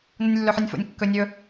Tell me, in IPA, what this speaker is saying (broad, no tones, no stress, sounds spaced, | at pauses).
n u nʲ lː ɵ ħ ɨ nʲ f o̰ nʲ kː ɵ nʲ ɵ